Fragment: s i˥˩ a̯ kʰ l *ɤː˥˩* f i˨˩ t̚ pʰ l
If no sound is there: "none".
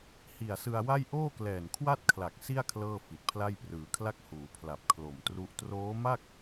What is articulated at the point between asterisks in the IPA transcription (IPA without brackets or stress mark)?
ɤː˥˩